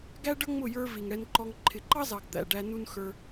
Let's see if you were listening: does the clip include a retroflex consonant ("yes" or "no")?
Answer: yes